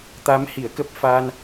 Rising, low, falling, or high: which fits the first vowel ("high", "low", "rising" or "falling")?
rising